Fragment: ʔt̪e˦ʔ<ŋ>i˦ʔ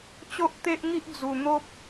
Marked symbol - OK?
yes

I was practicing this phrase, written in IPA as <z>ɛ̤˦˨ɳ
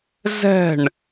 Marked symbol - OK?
yes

